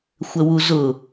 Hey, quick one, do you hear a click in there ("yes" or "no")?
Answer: no